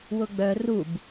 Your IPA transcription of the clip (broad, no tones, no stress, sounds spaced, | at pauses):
w ʊ ɡ͡b œ r u b